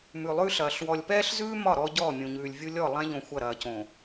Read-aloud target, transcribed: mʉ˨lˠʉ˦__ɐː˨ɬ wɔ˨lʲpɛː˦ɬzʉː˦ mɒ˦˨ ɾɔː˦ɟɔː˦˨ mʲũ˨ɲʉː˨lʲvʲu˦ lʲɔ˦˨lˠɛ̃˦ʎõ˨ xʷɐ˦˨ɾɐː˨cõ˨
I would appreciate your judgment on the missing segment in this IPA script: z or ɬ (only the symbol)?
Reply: ɬ